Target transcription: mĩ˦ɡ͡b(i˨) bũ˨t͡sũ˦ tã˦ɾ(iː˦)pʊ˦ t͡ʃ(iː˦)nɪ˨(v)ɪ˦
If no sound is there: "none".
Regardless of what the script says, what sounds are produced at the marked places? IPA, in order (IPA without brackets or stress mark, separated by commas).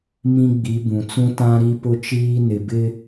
i˨˦, i˦, iː˦, b